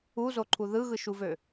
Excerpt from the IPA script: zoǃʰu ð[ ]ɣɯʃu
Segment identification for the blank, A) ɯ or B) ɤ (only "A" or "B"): A